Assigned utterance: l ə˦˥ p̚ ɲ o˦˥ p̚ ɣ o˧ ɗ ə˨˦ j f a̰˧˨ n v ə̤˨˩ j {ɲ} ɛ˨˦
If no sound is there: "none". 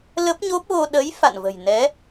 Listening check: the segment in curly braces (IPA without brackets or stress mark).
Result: n